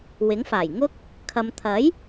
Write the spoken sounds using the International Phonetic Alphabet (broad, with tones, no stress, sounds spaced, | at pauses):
w ɪ˨˥ ŋ f aː˨˩ j ŋ ʊ˥ k̚ | kʰ ɐ˧ m t̪ʰ ɐ˨˥ j